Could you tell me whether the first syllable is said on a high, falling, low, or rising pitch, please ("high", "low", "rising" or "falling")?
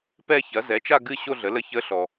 falling